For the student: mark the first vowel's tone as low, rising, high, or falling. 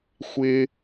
low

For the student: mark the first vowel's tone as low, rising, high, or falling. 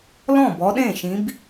falling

